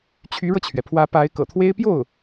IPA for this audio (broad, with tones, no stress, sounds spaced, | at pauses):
t͡ɕʰ y˧˥ ɻ ɤ˧ t͡ɕʰ ɥ ɛ˩ pʰ w ä˧˥ p a˧˥ ɪ̯ k ɤ̰˨˩ t̪ʰ w e˥ ɪ̯ p j o˥˩ ʊ̯